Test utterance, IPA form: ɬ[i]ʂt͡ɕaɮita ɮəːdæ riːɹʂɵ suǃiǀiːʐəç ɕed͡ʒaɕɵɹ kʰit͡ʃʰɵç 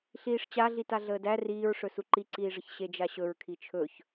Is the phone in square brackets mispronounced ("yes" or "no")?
yes